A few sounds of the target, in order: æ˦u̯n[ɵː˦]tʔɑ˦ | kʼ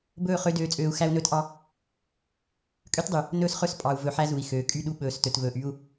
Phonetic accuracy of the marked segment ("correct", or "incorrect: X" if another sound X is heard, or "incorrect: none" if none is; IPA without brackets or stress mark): correct